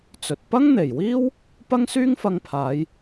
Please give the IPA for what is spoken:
t͡s ɵ˨ t̚ p ɐ˥ ŋ n̪ e˨˩ j w iː˥ w | p ɐ˥ ŋ s yː˥ ŋ f ɐ˧ ŋ pʰ aː˨˧ j

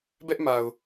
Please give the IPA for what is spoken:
b ɛ˦ ʔ m a˨ ʊ̯

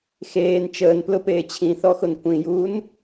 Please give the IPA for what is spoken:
x eː n t͡ʃ əː n p l ʊ p eː t͡ɕʰ ĩ θ ɔ x ʊ n kʷ ĩ j uː n

